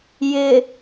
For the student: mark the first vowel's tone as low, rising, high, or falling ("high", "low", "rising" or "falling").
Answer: low